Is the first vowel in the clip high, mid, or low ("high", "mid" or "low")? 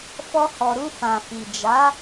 mid